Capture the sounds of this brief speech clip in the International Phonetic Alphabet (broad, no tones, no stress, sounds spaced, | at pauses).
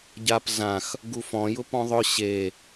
ɟ a p z ã x | ɡ u f ɔ̃ j ʊ p ɔ̃ ðˤ ʊ ɕ e